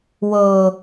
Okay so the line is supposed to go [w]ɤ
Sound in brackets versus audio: correct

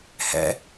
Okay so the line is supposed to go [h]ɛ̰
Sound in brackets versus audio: correct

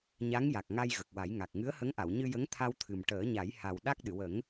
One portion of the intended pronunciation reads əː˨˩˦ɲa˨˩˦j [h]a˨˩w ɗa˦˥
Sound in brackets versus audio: correct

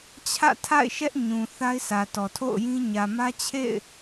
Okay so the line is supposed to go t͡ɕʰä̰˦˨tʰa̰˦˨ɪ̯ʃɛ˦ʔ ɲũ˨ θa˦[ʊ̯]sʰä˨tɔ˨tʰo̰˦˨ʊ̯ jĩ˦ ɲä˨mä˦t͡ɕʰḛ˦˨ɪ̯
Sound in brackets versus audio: incorrect: ɪ̯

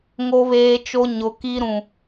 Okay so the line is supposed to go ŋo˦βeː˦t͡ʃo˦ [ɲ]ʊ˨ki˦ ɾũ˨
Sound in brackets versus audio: correct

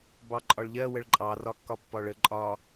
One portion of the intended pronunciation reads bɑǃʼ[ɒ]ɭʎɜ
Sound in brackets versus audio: correct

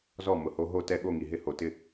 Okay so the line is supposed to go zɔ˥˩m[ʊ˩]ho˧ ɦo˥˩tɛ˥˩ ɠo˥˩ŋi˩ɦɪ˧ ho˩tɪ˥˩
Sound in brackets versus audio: correct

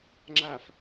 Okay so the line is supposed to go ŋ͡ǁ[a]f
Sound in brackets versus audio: correct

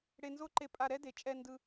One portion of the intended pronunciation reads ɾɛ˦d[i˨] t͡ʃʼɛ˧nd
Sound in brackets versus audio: incorrect: e˨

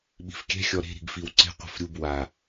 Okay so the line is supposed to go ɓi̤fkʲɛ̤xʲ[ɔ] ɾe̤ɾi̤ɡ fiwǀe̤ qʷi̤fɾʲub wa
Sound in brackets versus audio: correct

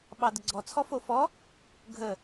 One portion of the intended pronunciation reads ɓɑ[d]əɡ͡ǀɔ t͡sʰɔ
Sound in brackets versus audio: correct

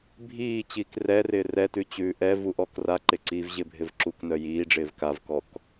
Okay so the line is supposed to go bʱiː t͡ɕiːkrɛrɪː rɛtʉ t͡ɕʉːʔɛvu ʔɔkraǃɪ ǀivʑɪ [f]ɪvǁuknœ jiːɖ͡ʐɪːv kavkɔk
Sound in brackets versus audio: incorrect: bʱ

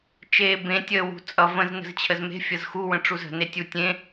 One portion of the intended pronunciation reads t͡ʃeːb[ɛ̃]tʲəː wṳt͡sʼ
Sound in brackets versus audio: incorrect: ẽ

